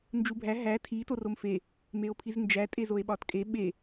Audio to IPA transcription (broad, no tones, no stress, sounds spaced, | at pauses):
n d͡ʒ u bʱ æ ɦ æ tʰ i t o r o m f e | m e o̯ pʰ i z n d͡ʒ æ tʼ e z o e̯ ɓ ɒ t kʼ e ɓ e